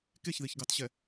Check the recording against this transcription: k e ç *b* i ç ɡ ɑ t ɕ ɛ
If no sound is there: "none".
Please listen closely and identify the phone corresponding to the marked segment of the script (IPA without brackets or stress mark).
ð